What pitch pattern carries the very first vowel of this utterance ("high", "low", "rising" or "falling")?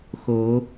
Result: rising